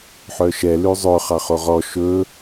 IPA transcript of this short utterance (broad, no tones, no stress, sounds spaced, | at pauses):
ħ œ ʃ ɛ l ʉ zˤ ɵ χ ɑ χ o ʁ ɔ ʃ ɵ